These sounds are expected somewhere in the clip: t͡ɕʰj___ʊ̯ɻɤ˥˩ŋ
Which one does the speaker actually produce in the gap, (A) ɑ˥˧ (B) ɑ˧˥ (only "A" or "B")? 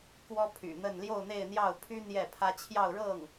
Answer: A